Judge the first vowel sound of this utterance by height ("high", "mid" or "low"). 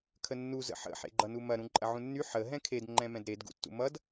mid